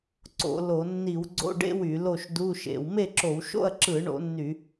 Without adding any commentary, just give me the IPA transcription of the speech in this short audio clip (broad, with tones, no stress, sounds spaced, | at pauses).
ǀ o̰˧˩˧ l o˧˩˧ nː i˧˩˧ w ɡ͡ǀ o̰˧˥˧ ɖ ḛ˧˥˧ w y˧˩˧ l o˥˨ ʃ d u˧˥˧ ʃ ḛ˧˩˧ w m e˥˨ ǁ o˧˩˧ w ʃ o̰˥˨ ɐ̯ ǁ ɯ˧˩˧ ɳ o̰˧˩˧ nː y˧˩˧